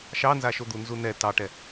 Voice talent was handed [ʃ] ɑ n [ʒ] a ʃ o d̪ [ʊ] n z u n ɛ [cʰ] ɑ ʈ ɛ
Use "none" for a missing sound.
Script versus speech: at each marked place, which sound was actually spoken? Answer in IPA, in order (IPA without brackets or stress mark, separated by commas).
ʃ, z, u, t